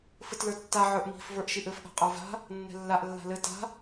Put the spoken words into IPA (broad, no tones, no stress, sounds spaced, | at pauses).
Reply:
f ɘ t l ə˞ tː a ʕ ə˞ ʔ m i̤ f v ə˞ ʔ ʃ i ʔ ɘ f ɠ a̤ qʼ ə˞ v a̤ | nː ɛ̤ lː a ʔ lː a̤ l ɘ t a̤